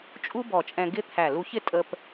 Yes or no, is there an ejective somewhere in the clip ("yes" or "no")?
yes